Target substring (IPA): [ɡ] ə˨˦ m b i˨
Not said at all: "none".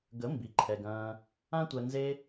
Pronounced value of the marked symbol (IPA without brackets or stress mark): ɡ